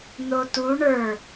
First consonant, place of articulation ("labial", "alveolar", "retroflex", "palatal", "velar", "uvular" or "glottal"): alveolar